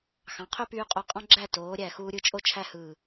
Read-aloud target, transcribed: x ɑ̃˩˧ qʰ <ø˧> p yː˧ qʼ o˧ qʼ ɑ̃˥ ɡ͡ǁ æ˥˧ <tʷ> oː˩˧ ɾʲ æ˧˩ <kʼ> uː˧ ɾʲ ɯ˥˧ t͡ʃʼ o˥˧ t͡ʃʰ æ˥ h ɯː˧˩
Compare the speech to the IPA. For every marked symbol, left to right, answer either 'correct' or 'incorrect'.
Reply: incorrect: ø˥, incorrect: t, incorrect: x

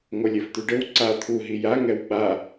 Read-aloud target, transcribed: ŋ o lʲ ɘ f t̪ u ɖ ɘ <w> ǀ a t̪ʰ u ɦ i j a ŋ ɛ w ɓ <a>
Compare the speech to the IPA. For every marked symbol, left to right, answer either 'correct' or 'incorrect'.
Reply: correct, correct

